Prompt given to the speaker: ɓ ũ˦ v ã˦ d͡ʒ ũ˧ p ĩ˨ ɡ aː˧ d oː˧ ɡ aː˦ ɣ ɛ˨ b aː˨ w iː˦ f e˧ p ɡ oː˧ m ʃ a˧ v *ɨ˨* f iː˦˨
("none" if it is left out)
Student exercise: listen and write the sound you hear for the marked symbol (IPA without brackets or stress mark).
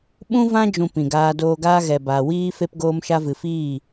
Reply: ɨ˨